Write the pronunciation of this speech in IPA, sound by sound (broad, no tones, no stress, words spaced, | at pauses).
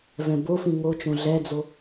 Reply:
vɛ̃bofĩ ŋot͡ʃõ ɮɛd͡zo